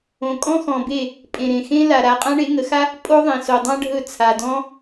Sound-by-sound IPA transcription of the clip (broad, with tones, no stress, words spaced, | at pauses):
õ˨kʼɔ̃˦xɔ̃˨be˦˨ | pʼẽ˨ɾẽ˨ xẽ˦ la˨ ɾa˧ qʼã˦ɳe˨˦ŋə˨˦xa˦ | pʼo˦ðˤẽ˨so˨dˤã˦ ɖʱɵ˦˨ t͡sʰa˨dɔ̃˦